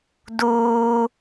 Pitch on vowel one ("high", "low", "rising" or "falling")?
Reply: high